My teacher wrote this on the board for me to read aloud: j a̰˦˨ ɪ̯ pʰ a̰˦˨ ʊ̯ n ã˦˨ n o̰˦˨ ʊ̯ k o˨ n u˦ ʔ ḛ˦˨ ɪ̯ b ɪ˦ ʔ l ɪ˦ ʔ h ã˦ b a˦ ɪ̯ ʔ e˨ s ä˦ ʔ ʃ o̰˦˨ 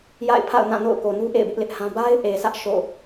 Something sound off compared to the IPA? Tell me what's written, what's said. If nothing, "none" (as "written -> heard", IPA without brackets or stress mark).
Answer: none